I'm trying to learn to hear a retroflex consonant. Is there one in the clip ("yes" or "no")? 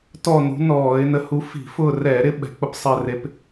no